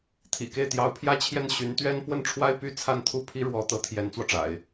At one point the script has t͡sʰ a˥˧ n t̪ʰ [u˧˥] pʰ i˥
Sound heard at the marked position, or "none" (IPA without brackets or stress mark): u˥˩